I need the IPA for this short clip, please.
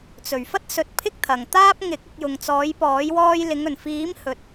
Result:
t͡s ɵ˨˩ ɥ f ɐ˥ t̚ s ɵ˨ t̚ pʰ ɪ˥ k̚ t̪ʰ ɐ˨˩ ŋ t̪ aː˥ p̚ ŋ ɪ˨˥ k̚ ɪ˧ k̚ j ʊ˨ ŋ t͡s ɔː˨˥ j p ɔː˨˥ j w ɔː˧ j l ɪ˨˧ ŋ ɵ˨˩ n f iː˨˥ m h ɵ˨ t̚

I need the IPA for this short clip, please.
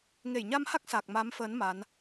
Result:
ŋ e˧˩ j ɲ a˧ m h a˦˥ k̚ s a˨˩ k̚ m a˨˦ m f əː˨˦ n m a˨˦ n

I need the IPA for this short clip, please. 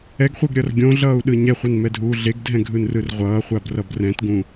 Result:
ɛ ɡ χʷ e ɡ ɾʲ ʌ r ɡʲ õ ɮ ʌː u̯ ɗ ɯ ɲ ɛ χʷ a n m ɛ dʱ uː ɮ e ɡ dʱ ɛ̃ ɡʱ ɯ n r ɯ r ʁʷ ʌː χʷ a b r ʌ b r ɛ̃ t ɡ ũ

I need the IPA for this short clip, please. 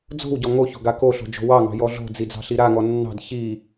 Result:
d͡z o̤ w ɟ ɔ ŋ o ç o̤ ɡ a k o ɬ o̤ d͡ʒ o̤ w ɑ ŋ ɑ̤ j ɔ ɮ o̤ d͡z i d͡z ɑ̤ ɬ i ɾ a ŋ ɔ nː ɑ̤ d ç i

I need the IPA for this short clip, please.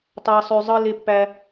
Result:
tˤ æ˦ sˤ ø˦ zˤ ɯ˦ l e˦ pː æ˦

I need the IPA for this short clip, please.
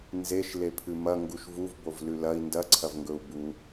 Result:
n z e ʃ l e pʰ ʉ m ɐ ŋ ɡ u ʃ v u v b o v l ʉ l ɐ i̯ n d ɐ ǀʰ ɐ v ŋ ɡ ɵ u̯ b u

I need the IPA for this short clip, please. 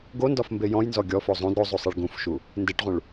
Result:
ɡ o n d ɒ f m b e j ɔ̃ j n z ɔ ɡʲ ɔ f o zˤ ũ d ɾ o zˤ u sˤ e ɭ ɡ ũ f ʃ u | n d e ʈ ʁ ũ ɭ

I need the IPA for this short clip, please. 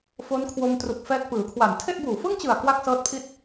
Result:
f o˦˥ n kʰ w o˧ m t r u˨˩ k̚ f ɛː˦˥ k̚ p ɯː˩˦ kʰ w a˨˩ n tʰ e˥˩ ʔ b uː˨˩ f ɯ˥˩ ŋ t͡ɕ ɯ˨˩ a̯ k w a˥˩ k̚ s ɤː˦˥ t̚ pʰ i˦˥ t̚

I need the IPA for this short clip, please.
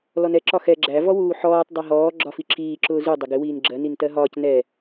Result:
l ɔ n ɛ ǁ ɒ x ɛ ɡ͡ǁ æ v ɔ w uː ħ ɔː tˤ dˤ ɛ ɦ ɔː ɡ͡ǁ ɒ f i ǁ iː ǁ ʊː z u dˤ ɪ ɡ ɪ w iː n ɡ͡ǁ ɜ n i n t ɜ ɦ ɒː c n ɛ

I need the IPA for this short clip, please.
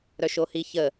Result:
ɾ œ ʃ o h i ç ə

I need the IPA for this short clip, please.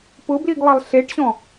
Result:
p ʊ b l i ɡ lˠ ɪ lˠ ɬ e ʈ ɕ ɔ̃

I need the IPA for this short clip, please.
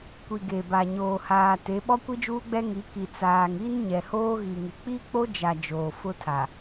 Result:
kʷ i˨ ɡ e˨ b a˨ ɲ oː˨ h aː˨ t e˨˦ ɓ ɔ˦ kʷ i˦ d͡ʒ uː˦ ɡ͡b ɛ˦ ŋ i˨˦ k i˨ t͡s aː˨ ŋ i˦ n ɲ ɛ˨ h oː˦ ɣ i˨ ŋ ɪ˨ k͡p i˦ k͡p o˦ d͡ʒ a˨ d͡ʒ oː˨ f ʊ˦ tʰ a˨

